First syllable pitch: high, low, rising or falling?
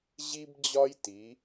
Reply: high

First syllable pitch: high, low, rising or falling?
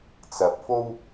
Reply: low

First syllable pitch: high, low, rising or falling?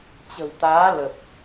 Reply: low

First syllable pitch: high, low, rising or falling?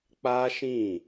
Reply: high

